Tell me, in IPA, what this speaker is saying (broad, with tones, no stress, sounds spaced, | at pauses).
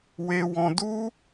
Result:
w e˧ w ɔ̃˧ d u˦